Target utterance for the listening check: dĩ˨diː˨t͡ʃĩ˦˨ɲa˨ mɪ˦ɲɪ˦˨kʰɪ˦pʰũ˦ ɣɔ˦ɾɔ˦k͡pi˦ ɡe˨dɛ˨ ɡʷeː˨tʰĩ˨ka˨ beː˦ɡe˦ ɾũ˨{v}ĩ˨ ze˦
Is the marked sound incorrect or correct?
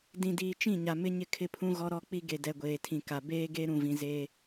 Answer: correct